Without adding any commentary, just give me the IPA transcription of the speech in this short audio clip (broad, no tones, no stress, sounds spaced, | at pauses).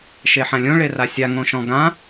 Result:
ʃ e ħ ã lʲ õ ɭ e r a sʲ a ŋ õ ʃ ɔ̃ ɡ ã